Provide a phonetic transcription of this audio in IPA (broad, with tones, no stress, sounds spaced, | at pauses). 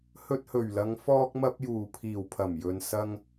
h ɵ˧ t̚ h ɵ˨˩ ɥ l ɐ˨˧ ŋ f ɔː˧ k̚ m ɐ˧ p̚ j uː˨˩ pʰ iː˨˩ w pʰ ɐ˨˩ m j ɵ˨ n s ɐ˧ ŋ